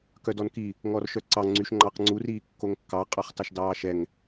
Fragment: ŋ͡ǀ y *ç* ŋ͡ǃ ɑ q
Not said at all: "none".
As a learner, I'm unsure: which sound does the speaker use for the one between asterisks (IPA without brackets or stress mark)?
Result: ʃ